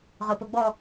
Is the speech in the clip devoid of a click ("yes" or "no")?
yes